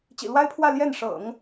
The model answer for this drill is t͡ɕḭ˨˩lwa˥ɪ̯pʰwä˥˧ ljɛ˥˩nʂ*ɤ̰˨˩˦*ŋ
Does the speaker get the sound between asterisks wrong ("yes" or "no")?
no